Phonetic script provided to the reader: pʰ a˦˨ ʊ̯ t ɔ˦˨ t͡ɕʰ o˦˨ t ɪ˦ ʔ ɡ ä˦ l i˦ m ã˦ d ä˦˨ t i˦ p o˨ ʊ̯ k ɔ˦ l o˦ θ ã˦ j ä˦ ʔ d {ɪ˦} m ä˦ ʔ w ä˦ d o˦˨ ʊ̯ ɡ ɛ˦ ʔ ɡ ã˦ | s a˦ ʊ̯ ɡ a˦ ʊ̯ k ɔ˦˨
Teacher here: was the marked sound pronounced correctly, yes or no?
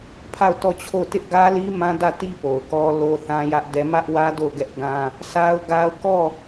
no